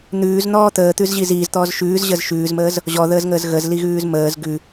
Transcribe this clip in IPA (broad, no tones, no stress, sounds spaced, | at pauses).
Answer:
n̪ ʉː z n̪ ɔː t̪ əː t̪ ʉ z ʑ i z iː z t̪ ɔː z ʃ ʉː z ʑ ə z ʃ ʉː z m əː z | ʑ ɔ ð əː z ŋ əː z ɣ ə z l i ɣ ʉː z m əː z ɡ ʉ